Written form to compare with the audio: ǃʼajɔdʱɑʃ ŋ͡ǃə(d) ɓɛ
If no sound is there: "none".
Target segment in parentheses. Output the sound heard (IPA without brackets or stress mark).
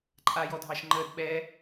d